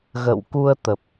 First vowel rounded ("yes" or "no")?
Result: no